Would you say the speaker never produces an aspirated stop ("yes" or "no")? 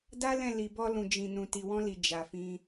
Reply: yes